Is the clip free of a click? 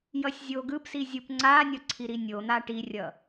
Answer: no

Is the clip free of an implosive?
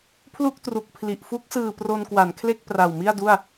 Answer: yes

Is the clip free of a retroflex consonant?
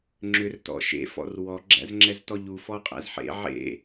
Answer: yes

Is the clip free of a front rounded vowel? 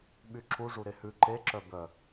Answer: no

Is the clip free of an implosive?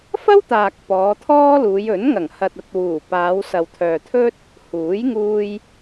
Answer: yes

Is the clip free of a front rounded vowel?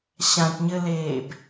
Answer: yes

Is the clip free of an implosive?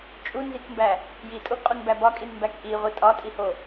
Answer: yes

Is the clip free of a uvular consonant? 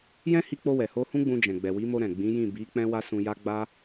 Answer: yes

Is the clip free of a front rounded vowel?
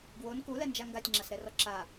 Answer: yes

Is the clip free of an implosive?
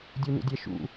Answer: yes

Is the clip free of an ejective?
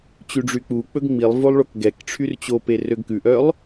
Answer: yes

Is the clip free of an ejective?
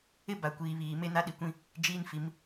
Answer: yes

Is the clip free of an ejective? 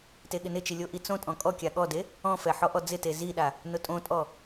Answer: no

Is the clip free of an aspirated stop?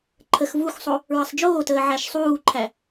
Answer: no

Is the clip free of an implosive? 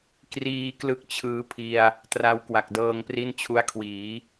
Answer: yes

